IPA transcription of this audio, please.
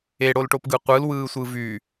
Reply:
e ɽ o l ʈ o p ɡ ɯ qʷ ɯ l w ɯː sʷ ɯ v y

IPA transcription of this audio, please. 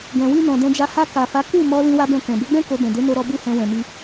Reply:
ɡ ɛ̃˨ w i˧ n ɔ̃˨ d ɛ̃˧ d͡ʒ a˧ h a˧ k a˨ f a˨˦ k u˦˨ m ɔ˧ l ĩ˦ w a˦ b ɛ̃˦˨ k ɛ̃˨ b e˨˦ ɡ͡b ɛ̃˦ k o˧ b ɛ̃˨ d e˨˦ n o˧ ɾ ɔ˧ b u˦ h ɛ̃˧ w ɛ̃˨ m i˧

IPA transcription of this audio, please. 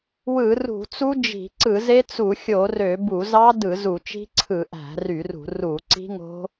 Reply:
w ɯ˧˩˧ r ṳ˧˩˧ t͡s u˦˥ d͡ʒ i̤˧˩˧ ǀ ɯ˧˩˧ z e˦˥ t͡s u˧˩˧ xʲ o˧˩˧ r ø˧˩˧ b u˧˩˧ z ɑ˦˥ d ɯ˧˩˧ z u˧˩˧ t͡ʃ i̤˦˥ ǀʰ ɯ˧˩˧ ʔ æ̤˧˩˧ r y˧˩˧ r ṳ˧˩˧ r u˧˩˧ ǀ i̤˦˥ ŋ o̤˦˥

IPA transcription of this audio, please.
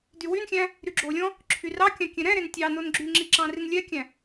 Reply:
d y w y n xʲ æ̃ | ɾ y ɡ͡ǁ o lʲ ɔ̃ | ǁʰ y r ɑ kʲ ɑ̃ kʲ ɛ̃ ɾ ɛ̃ ɾ e n tʲ ɑ n o n ɡ͡ǁ y ŋ͡ǁ i ǁ ɑ̃ r i n lʲ ɛ kʲ æ̃

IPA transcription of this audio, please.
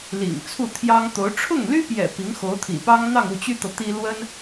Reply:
l ḭ˨˩ ŋ t͡sʰ u˥˩ t̪ʰ j ɑ˥ ŋ t̪ o˧˥ ʊ̯ ʈ͡ʂʰ ʊ˥˩ ŋ l y˥ p j ɛ̰˨˩ p i˧˥ ŋ x o˧˥ ʊ̯ t̪ʰ ḭ˨˩ p ɑ˥ ŋ n̪ ɑ˥˧ ŋ u˥˩ t͡ɕ y˥ t̪ ɤ˨ t̪ i˥ l w ə˥ n

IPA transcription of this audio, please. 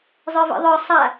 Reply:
zˤ ə˞ v ḭ ðˤ ə˞ sˤ a

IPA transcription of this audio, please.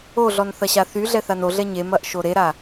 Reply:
o ɮ ɔ n θ ɐ ɕ a θ y ɮ ɛ θ a n o ɮ ɛ ɲ e m ɐ ʔ ʃ o ɾ e ɾ a

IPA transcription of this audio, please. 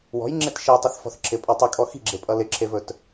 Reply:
w ɔ̤ j ŋ͡ǁ e t ʃ i tˤ e θ f ɔ̤ θ ǁʰ ɪ pʼ ʌ tˤ ɪ kʼ ɔ x i̤ ɡ͡ǁ e pʼ ʌ l ɪ ǁʰ e v ɵ t

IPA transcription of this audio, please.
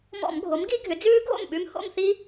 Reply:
m ɔ̰˧˩˧ m ɡʱ o˩˥ m ɡ i˦˥ ɡʱ ʏ˩˥ d͡z ʉː˦˥ ɡʱ o̰˥˩ m ɓ ʉ˦˥ m h o̰˥˧ m θ i˦˥

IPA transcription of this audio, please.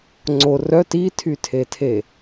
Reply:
ŋ͡ǀ o r œ t i tʰ y tʰ e tʰ e

